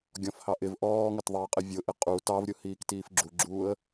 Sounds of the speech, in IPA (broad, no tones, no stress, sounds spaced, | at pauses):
ɡʲ ɔ̃ f h ɑ ʔ ɪ v ʔ ɔː ŋ ə t ðˤ i ə̯ qʼ ɪ vʲ ʊ ʔ ɪ qʼ u t ɑ v ɾʲ ʊ h iː k t iː f ɡ͡ǁ u ɡ͡ǁ uː ə̯